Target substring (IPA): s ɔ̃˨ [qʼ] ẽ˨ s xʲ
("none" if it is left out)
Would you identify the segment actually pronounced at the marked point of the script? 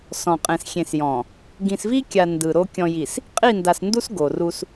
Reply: qʼ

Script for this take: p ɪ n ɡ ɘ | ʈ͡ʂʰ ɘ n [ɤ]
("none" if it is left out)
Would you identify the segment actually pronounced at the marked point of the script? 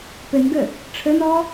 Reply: ɔ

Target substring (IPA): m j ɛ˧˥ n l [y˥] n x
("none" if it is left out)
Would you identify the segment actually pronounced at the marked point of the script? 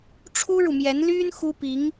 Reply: y˥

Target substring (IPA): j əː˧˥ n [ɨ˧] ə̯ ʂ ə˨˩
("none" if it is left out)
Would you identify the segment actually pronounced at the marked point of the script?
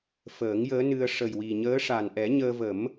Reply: ɨ˧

